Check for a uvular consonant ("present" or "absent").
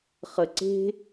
present